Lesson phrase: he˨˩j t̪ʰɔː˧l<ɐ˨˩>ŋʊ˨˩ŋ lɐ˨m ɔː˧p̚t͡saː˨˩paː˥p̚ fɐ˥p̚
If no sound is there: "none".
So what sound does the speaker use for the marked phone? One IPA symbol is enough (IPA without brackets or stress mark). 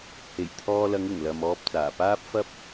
ɐ˨˧